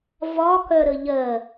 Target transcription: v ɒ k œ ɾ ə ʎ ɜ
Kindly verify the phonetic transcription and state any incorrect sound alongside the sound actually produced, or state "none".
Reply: none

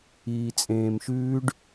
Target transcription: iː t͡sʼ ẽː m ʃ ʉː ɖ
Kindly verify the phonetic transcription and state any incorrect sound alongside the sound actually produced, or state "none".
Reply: none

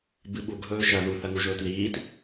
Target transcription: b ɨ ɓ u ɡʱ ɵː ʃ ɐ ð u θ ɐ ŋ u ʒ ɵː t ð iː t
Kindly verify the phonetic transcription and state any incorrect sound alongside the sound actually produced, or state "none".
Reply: none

